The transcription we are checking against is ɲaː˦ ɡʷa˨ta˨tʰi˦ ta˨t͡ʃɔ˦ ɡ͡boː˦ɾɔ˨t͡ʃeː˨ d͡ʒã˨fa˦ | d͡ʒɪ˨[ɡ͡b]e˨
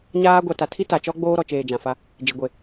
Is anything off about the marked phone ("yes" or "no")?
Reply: yes